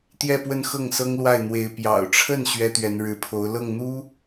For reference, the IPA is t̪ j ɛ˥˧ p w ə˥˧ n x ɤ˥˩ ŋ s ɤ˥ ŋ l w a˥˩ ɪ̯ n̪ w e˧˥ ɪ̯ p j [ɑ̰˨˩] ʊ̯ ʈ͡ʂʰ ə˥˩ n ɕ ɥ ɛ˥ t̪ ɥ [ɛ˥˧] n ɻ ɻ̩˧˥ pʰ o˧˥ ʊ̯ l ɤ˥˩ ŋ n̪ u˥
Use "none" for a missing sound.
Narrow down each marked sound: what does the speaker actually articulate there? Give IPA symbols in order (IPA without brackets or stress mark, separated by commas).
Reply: ɑ̰˨˩, ɛ˧˥